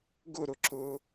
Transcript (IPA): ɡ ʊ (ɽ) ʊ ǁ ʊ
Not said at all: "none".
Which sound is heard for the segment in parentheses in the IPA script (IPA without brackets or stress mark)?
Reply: ɾ